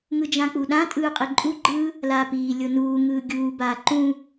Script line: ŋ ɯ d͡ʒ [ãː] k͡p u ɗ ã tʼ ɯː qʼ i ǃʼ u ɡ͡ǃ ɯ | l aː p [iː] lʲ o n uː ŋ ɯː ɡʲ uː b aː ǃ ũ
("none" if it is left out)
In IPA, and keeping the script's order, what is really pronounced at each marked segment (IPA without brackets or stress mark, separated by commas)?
ã, iː